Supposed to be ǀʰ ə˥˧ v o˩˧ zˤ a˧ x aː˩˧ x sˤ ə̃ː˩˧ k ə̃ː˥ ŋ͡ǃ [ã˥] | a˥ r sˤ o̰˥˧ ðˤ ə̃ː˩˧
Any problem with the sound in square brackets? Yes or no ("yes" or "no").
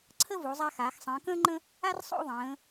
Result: yes